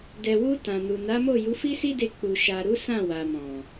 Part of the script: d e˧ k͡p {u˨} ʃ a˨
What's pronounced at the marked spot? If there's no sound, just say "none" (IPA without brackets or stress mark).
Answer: u˨